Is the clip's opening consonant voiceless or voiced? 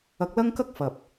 voiceless